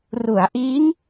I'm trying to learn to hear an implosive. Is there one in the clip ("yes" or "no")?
no